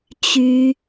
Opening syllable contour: high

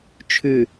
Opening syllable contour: low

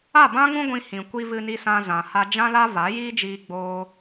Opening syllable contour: falling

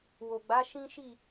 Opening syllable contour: low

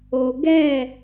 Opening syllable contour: low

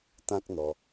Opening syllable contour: high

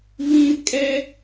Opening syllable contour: high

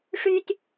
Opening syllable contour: high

